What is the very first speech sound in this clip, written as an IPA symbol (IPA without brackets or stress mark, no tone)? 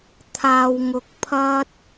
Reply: t̪ʰ